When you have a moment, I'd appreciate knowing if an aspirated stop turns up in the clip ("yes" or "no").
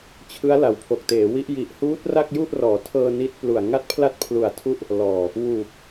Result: yes